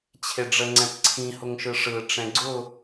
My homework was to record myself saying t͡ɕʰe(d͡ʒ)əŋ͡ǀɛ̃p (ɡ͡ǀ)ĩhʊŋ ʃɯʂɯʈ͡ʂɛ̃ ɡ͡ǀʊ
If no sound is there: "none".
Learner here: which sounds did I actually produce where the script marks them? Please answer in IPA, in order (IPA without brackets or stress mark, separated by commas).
ɖ͡ʐ, ǀʰ